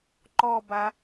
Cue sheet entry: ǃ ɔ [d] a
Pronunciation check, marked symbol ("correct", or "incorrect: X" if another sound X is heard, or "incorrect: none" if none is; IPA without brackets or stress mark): incorrect: b